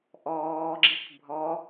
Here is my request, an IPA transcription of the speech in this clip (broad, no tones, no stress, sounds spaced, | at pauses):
ʔ ɔː ɡ͡ǁ i k bʱ ɔ